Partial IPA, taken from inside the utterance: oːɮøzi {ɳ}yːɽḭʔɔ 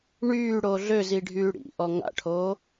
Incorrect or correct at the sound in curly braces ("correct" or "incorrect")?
incorrect